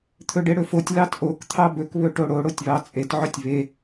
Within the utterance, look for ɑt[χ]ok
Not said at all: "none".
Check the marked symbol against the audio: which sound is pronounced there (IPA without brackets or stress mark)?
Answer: ʔ